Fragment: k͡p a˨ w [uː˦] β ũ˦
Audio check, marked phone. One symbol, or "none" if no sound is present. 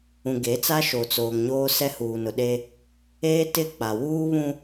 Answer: uː˦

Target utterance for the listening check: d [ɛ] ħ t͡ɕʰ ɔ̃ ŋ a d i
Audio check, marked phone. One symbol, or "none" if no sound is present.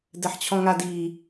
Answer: ɛ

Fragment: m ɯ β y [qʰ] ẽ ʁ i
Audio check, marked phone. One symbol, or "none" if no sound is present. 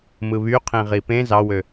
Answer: qʰ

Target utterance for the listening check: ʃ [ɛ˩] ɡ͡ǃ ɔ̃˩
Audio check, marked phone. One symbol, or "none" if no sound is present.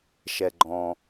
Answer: ɛ˩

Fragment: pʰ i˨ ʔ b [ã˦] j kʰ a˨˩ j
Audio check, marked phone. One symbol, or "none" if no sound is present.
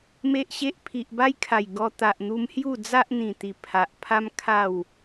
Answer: a˦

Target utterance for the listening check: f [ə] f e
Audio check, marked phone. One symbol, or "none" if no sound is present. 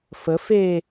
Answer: ə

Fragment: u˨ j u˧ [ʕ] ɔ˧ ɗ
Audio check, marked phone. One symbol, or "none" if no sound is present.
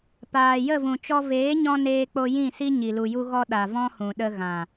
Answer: ɣ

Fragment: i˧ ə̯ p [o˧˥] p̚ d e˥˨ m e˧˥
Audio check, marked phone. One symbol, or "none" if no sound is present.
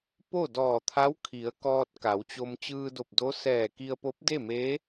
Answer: o˧˥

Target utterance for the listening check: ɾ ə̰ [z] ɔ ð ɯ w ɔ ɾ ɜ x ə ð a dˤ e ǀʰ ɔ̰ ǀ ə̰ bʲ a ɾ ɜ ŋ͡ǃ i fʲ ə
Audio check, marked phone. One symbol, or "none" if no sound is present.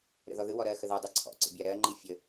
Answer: ð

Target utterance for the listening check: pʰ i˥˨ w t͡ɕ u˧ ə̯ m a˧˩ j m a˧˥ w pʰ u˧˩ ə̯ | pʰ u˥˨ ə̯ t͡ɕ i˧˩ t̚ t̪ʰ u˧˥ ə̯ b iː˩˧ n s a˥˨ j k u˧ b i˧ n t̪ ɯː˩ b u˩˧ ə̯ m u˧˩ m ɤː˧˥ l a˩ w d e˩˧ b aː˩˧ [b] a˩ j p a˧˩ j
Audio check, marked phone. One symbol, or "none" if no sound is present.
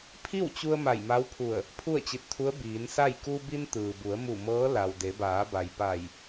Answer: b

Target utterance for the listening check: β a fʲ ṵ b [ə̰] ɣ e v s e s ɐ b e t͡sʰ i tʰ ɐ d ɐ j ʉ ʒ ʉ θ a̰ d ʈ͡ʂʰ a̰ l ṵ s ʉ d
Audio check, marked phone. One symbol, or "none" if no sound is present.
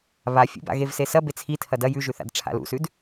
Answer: a̰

